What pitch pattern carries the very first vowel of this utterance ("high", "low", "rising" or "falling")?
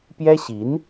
high